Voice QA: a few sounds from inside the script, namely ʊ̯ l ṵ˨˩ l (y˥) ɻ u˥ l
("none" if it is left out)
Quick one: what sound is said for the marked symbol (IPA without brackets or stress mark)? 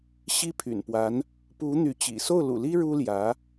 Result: i˥